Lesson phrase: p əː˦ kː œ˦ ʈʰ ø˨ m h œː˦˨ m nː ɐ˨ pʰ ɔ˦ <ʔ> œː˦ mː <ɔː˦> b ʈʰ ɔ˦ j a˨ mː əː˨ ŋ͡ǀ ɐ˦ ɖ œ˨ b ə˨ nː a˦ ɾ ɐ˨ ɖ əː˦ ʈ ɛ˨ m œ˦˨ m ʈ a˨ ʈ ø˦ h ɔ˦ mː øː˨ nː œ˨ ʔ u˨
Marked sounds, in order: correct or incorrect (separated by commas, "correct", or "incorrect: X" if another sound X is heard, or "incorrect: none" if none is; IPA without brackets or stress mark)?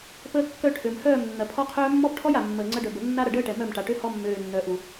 incorrect: qʰ, incorrect: ɔ˦